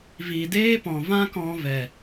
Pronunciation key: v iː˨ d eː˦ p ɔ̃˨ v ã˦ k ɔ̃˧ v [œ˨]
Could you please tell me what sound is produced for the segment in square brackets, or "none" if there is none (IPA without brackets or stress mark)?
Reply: ɛ˨